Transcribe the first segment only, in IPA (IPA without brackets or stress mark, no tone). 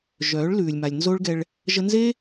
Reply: ʒ